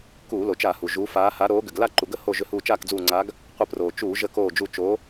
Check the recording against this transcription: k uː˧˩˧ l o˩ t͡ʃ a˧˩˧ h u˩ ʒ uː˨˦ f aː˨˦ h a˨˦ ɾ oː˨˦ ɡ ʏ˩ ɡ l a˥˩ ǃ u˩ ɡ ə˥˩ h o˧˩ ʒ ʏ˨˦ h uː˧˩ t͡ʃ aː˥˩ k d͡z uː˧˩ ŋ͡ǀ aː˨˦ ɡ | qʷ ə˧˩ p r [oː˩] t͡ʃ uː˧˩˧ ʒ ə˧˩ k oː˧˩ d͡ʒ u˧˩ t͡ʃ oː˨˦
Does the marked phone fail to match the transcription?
no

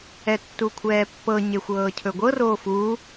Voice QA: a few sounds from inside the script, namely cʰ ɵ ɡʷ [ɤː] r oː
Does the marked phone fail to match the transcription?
yes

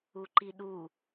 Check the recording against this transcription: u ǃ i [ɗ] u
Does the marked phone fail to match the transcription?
no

